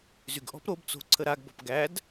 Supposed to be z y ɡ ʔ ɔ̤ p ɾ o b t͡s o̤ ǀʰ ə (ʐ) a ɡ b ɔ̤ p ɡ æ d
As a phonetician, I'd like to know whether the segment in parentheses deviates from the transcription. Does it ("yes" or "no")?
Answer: yes